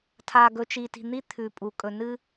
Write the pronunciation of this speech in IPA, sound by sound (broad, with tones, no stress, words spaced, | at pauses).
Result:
tʰa˨ ɡɵ˨t͡ʃi˨ti̤˨ n̪i˦ t̪ʰʉ˨pʼu˨ kʼɵ˨nɨ˦